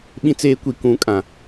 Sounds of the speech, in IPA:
ɓĩ˦t͡seː˦kʷi˨ kũ˨˦kʼã˨

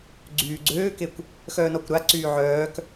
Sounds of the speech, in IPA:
ɡ͡ǀyːɡ͡ǀøːkekʷ | xœːnɔkʷɾaǀyː ʕœːk

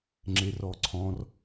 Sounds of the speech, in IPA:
ŋ͡ǁerɔǀʰɔ̃r

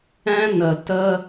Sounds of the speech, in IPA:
ɛ̃˧ nə˨ tə˦

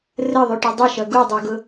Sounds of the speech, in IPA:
rəðˤyʈy dˤʊʃʌ ɡudˤuɡʊ

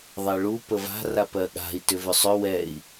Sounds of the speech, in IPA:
ðˤɛɭu pəva̤ rapɜɠa̤i̯ tʏvʏsˤʏ wɛi̯

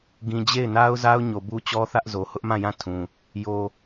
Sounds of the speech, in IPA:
ɡĩ˨ d͡ʑe˦˨ɪ̯na˦ʊ̯za˦ʊ̯ ɲo˨bu˦ t͡ɕɔ˦θä˦ʔ zo˨ hʊ˦ʔmã˦˨jã˦˨ tʰũ˨ | jo˨

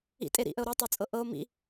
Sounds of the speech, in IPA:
ḭ tʼeɾḭʔəo̯ ɾitˤø t͡sʼɤʔɤo̯ mḭ

